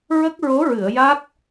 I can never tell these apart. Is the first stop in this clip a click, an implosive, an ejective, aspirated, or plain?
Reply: plain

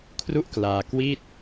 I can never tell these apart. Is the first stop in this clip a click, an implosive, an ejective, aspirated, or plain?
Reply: aspirated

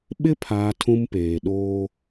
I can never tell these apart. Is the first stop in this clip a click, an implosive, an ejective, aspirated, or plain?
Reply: implosive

